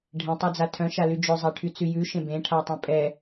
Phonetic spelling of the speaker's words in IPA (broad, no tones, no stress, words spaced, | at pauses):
ɖʱẽtˤad͡za tʰœ̃ʃaly d͡ʒœzˤæʈʰyt͡sy jʉʃẽ bẽʈʰatˤẽ pʼɛ